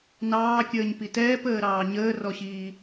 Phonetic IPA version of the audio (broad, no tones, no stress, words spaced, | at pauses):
nɑːkʲəːɲpi tɛːpəːɾɑː ɲəːrɔɕiː